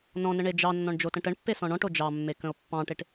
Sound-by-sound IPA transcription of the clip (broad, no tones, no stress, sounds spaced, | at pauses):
n ɔ̃ n ə ɳ e d͡ʒ ɑ nː ɔ̃ ɳ d͡ʒ o t ə̃ ʈ ə ɳ pː e s ɔ̃ ɳ ɔ̃ ʈ o d͡ʒ ɑ mː e k ə̃ o̯ pː ɑ̃ ʈ e ʈ